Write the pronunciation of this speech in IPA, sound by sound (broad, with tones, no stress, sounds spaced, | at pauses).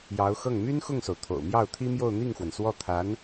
j ɑ˧˥ ʊ̯ x ɤ˥˩ ŋ m y˥ n x ʊ˥˩ ŋ s o˩ ʊ̯ t̪ʰ o̰˨˩ ʊ̯ m j ɑ˥˩ ʊ̯ t̪ʰ i˥ m j o˥˧ ʊ̯ n̪ i˥˩ ŋ x w ə˩ n s w ɔ˥˩ t̪ʰ a˧˥ n